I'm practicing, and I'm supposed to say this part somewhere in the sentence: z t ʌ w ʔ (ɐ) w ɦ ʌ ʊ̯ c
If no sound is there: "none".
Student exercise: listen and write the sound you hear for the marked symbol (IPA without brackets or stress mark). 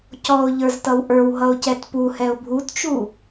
ə˞